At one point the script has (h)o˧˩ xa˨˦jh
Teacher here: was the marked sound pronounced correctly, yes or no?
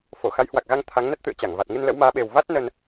no